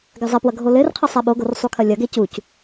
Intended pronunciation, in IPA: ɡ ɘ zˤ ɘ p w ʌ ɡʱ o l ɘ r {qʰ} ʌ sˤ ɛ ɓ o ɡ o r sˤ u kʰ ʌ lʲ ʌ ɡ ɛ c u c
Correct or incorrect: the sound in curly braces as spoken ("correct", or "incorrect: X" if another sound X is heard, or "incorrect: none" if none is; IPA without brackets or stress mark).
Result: correct